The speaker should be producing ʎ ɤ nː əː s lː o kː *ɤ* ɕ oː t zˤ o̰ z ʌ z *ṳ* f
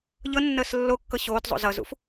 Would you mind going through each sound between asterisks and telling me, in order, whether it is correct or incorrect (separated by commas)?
correct, incorrect